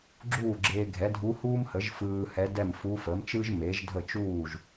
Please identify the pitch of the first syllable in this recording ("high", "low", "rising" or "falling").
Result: falling